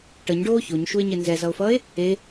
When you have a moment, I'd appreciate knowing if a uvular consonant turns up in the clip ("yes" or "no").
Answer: no